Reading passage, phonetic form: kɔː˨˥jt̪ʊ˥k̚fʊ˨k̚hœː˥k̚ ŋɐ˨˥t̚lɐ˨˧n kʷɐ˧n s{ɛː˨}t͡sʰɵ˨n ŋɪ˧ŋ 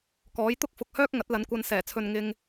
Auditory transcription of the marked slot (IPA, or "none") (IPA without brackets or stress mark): ɛː˨˩